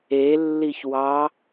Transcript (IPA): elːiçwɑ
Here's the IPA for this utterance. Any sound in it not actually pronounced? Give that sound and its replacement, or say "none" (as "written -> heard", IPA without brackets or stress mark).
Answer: none